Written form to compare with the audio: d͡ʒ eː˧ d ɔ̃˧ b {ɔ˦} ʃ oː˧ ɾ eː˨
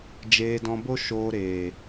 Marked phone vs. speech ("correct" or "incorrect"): incorrect